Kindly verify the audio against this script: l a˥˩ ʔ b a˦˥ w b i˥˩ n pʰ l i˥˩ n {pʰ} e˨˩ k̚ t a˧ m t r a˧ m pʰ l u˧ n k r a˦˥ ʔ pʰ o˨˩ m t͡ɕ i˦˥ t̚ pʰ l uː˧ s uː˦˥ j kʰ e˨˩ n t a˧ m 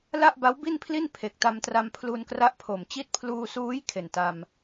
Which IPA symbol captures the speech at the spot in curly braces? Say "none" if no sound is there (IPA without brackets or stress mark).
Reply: pʰ